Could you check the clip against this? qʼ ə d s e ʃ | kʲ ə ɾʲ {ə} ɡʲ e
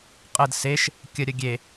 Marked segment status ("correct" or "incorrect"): correct